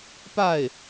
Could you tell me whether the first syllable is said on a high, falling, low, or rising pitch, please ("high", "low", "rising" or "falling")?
falling